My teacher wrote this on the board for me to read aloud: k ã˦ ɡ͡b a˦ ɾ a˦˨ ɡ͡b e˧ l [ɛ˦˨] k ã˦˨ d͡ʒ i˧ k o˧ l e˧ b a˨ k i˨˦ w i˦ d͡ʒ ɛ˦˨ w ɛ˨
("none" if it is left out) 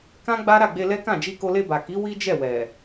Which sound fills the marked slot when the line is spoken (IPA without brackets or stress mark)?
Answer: ɛ˦